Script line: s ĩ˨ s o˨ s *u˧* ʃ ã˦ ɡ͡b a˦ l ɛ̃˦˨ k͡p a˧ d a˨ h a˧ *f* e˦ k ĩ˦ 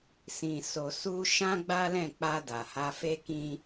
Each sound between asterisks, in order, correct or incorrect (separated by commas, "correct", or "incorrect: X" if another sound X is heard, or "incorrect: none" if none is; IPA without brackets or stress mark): correct, correct